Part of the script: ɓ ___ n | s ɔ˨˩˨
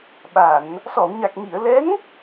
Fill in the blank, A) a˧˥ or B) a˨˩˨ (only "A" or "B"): B